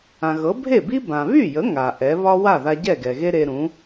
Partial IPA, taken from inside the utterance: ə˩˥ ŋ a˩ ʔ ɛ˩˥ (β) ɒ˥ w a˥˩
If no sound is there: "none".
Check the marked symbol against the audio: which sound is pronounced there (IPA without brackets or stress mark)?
β